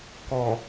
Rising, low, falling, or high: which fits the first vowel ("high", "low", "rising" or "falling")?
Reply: low